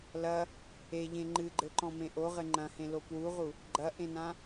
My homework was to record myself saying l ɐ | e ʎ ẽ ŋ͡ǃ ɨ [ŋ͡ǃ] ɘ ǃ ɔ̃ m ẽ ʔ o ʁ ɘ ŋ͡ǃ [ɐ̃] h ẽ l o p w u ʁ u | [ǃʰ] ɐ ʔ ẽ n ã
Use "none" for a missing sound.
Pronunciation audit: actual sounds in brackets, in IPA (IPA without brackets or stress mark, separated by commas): ɡ͡ǃ, ɐ̃, ɡ͡ǃ